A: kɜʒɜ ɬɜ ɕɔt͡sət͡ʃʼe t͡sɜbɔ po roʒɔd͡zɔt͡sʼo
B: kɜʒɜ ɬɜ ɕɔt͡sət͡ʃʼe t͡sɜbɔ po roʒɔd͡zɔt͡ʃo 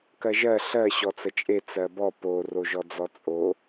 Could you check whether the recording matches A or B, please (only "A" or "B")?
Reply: A